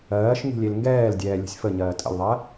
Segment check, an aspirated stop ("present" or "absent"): absent